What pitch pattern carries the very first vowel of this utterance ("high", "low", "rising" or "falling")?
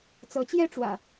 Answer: rising